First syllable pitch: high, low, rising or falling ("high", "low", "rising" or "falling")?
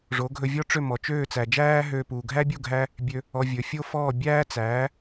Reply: rising